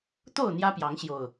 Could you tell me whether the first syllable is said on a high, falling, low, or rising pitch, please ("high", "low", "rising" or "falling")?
falling